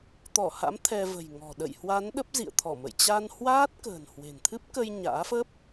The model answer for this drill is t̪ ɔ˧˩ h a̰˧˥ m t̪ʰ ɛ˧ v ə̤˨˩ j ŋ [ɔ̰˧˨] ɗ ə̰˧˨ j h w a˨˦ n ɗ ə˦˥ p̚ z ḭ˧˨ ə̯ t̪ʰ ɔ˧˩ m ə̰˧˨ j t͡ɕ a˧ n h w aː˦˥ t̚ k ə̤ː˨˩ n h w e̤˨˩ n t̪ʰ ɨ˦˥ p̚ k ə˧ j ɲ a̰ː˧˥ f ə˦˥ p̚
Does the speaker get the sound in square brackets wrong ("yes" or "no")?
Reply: yes